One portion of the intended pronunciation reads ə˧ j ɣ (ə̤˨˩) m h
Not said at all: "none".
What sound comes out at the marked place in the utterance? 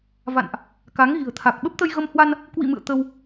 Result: ə˧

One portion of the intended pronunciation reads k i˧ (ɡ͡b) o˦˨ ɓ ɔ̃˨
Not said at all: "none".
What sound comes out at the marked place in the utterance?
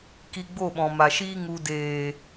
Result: ɡ͡b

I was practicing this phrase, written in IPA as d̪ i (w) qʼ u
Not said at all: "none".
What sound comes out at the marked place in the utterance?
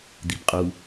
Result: b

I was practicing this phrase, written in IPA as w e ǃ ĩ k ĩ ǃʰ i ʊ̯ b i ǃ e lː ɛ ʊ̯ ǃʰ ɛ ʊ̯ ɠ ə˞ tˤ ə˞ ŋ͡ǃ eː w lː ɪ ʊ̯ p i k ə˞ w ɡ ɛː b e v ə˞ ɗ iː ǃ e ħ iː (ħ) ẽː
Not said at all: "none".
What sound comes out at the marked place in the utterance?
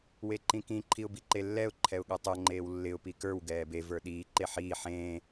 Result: ħ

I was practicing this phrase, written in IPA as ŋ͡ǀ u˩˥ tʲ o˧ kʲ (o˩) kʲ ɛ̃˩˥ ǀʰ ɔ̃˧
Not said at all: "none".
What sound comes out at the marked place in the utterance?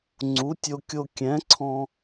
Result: o˧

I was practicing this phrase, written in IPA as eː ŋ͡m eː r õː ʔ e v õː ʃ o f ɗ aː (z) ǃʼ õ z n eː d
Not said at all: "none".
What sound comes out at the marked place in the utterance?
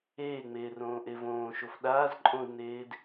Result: z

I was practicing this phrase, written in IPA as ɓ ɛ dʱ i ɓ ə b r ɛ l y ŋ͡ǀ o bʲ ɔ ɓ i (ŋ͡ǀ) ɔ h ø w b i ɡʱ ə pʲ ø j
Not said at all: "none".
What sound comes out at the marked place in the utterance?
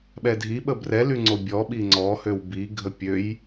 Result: ŋ͡ǀ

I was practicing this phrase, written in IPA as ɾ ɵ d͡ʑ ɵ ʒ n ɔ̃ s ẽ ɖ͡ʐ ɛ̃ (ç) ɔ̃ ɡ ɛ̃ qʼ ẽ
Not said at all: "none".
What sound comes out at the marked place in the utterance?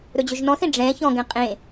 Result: ç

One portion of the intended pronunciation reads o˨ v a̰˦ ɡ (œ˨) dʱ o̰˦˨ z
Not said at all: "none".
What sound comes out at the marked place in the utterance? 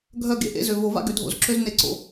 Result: ø˨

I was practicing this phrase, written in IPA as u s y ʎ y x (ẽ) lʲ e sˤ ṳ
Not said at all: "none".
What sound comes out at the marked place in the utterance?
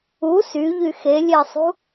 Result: e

